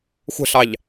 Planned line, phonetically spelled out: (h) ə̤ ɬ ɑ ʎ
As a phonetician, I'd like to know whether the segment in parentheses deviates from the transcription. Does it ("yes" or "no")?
yes